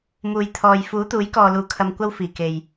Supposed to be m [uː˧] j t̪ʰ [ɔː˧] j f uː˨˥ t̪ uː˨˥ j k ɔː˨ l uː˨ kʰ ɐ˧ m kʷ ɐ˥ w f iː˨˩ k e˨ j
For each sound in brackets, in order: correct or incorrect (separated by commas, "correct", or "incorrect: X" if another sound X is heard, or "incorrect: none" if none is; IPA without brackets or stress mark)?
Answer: incorrect: uː˨, incorrect: ɔː˨